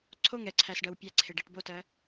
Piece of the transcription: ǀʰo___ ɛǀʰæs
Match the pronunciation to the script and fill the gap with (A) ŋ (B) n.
A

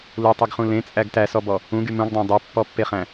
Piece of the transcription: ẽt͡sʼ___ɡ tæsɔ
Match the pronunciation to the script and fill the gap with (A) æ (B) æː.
A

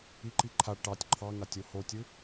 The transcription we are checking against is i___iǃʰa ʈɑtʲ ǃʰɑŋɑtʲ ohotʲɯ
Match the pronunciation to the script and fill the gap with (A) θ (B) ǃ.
B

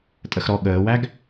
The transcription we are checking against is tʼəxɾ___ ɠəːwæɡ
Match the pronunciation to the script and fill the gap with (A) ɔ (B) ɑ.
A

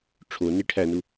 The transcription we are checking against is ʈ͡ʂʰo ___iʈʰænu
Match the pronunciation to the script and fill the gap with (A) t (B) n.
B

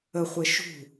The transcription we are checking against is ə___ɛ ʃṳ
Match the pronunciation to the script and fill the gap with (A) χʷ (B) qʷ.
A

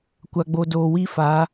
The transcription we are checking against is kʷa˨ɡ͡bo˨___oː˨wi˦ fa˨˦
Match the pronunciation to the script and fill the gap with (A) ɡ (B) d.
B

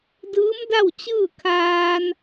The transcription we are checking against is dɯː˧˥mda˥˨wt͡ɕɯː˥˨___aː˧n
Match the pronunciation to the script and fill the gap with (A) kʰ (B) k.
A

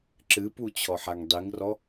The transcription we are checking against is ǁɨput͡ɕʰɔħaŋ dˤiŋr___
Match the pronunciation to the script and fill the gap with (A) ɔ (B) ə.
A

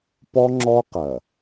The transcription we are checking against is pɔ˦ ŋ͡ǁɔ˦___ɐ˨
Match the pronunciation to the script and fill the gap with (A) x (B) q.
B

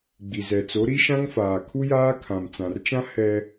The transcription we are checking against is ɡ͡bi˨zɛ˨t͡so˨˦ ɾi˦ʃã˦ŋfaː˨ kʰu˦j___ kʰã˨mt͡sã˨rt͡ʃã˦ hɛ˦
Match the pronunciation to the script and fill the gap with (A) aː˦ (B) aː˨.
A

